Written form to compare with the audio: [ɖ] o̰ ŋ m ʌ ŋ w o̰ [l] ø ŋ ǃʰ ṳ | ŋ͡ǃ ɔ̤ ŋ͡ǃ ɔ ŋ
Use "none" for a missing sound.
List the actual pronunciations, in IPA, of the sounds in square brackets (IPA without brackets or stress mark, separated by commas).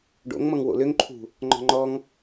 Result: ɖ, l